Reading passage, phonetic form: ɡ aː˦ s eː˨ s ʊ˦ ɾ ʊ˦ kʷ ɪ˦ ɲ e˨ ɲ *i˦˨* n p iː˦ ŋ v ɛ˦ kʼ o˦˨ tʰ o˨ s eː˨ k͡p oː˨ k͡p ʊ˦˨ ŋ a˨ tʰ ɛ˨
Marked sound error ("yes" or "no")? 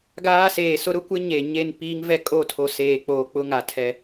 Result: yes